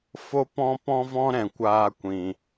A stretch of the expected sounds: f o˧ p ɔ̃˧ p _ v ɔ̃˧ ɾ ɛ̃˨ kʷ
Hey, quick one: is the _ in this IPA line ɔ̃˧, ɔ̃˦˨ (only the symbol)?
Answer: ɔ̃˧